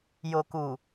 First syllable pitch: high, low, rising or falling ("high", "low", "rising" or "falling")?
low